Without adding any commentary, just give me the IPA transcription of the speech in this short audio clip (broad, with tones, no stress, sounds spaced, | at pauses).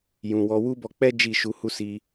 j ũ˨ w ɔ˨˦ w u˦ b ɔ˧ k͡p ɛ˦ d͡ʒ i˦˨ ʃ u˨˦ h u˦ s i˧